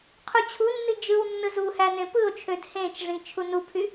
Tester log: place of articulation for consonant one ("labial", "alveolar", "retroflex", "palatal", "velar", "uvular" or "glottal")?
uvular